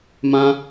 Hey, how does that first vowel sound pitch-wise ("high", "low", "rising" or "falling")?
high